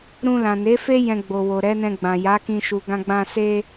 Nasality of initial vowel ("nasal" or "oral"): nasal